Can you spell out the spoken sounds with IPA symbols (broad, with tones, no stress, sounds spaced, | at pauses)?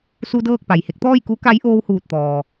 s u˧ d ɤː˥˨ k̚ p a˩ j h e˧˥ k̚ t̪ ɔː˥˨ j k u˧˥ k a˧˥ j ʔ oː˧ w h uː˧˩ t̚ t̪ ɔː˩